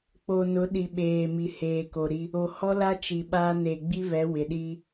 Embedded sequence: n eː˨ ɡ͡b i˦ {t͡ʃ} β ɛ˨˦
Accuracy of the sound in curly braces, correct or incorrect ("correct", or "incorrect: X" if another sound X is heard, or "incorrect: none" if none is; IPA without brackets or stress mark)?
incorrect: none